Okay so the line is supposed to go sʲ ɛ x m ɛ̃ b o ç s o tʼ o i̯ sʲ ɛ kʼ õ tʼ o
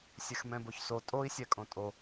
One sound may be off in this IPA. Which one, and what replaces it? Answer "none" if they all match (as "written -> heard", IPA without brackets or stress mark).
none